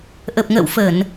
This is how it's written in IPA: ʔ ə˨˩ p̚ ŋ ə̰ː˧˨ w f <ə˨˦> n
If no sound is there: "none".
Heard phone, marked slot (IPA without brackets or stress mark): ə˧˩˨